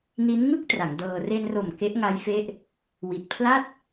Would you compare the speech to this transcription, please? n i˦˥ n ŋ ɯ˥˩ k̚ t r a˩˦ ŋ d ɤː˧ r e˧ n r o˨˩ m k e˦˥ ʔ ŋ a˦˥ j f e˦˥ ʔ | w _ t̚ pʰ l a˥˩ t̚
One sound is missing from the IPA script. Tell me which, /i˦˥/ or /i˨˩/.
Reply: i˨˩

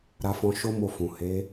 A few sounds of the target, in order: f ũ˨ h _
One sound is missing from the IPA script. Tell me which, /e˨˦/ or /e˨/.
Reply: e˨˦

